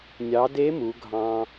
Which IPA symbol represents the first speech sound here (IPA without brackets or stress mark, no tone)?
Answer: nʲ